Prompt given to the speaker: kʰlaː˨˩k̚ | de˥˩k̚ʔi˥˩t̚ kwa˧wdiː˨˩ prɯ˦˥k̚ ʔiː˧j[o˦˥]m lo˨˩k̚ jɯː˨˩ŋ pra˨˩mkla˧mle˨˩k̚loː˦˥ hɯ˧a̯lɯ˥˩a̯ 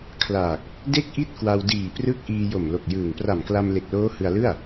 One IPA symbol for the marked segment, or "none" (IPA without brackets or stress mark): o˨˩